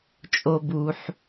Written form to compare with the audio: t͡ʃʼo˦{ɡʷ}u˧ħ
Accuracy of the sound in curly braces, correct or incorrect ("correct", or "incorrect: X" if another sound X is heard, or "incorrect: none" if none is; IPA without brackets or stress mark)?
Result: incorrect: b